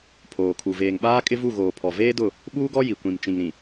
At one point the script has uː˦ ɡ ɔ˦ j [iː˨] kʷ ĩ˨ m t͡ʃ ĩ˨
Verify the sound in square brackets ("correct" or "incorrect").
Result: incorrect